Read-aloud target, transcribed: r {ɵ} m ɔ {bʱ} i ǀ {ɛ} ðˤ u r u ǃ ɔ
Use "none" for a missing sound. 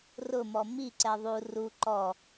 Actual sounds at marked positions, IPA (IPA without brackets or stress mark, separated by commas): ʊ, m, ɛ